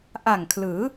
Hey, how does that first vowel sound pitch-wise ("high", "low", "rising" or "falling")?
low